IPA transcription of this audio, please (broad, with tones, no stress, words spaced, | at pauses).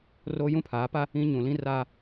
ro˦ jũ˦pʰaː˨˦pa˦ | ĩ˦ ɲũ˨lĩ˦raː˦